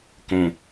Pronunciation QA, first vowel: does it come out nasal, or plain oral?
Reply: nasal